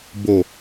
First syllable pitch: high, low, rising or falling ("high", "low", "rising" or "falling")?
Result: low